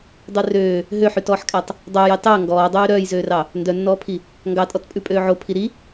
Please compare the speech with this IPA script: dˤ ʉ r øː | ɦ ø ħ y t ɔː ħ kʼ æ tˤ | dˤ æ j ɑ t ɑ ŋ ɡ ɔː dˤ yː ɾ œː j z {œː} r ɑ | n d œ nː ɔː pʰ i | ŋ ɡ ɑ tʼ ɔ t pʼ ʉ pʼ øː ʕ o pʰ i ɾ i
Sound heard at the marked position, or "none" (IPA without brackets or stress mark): øː